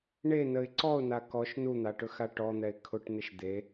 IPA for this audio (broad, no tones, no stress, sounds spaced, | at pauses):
ɳ e n ə ɪ̯ ǀ ɔ ʊ̯ n a k ɔ ʃ n u n̪ a ʈ ɵ x a ʈ ɔ n̪ ɛ ɪ̯ kʰ ʊ ʈ n̪ ɪ ʃ d̪ e